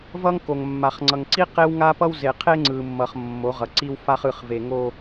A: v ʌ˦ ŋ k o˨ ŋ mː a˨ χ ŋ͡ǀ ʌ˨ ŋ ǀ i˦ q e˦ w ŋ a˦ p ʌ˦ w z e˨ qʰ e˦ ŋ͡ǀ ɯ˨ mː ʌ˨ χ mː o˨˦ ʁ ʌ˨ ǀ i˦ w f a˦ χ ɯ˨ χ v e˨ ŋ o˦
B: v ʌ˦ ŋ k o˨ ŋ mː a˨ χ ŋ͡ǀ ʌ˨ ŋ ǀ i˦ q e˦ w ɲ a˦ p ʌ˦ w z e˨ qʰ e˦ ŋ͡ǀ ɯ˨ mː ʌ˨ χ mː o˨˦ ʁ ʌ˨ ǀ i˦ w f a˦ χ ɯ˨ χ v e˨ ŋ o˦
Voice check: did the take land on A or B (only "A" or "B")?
A